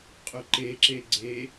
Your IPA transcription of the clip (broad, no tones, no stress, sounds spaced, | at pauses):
qʼ ɵ ǃ e ǁ e ɡ͡ǀ e